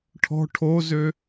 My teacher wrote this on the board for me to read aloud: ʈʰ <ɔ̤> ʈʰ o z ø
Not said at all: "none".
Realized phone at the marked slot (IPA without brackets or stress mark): ɔ̤